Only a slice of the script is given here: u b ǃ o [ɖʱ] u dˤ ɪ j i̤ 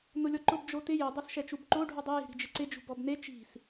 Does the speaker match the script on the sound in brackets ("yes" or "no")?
yes